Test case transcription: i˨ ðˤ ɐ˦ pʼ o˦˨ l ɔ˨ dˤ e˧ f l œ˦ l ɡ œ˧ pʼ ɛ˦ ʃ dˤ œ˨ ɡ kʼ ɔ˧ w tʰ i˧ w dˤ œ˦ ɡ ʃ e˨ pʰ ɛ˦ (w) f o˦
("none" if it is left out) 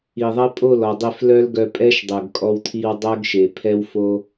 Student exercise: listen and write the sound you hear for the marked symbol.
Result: w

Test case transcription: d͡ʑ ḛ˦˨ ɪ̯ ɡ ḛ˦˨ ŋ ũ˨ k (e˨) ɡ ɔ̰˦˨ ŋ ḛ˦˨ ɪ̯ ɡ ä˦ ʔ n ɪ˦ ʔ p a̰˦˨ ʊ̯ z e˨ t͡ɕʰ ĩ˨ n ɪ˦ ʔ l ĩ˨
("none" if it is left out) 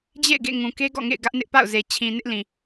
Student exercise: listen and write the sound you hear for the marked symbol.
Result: e˦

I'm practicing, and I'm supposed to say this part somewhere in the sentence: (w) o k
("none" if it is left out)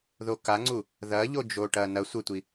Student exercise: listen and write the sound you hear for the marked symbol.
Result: ð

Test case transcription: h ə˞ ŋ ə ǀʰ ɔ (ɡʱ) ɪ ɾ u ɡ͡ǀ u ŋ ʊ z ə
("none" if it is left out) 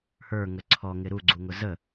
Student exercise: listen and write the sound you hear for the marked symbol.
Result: ŋ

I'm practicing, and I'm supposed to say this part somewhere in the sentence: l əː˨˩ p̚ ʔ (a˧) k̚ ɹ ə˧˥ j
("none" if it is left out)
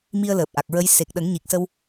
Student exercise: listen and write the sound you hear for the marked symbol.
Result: a˨˩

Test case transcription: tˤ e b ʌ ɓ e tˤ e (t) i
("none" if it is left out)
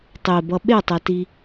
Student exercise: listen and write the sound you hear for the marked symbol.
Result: t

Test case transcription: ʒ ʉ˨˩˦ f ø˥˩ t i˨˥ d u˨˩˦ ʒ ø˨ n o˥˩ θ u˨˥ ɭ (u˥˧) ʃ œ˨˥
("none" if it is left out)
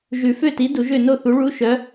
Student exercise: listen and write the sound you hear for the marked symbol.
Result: u˧˥˧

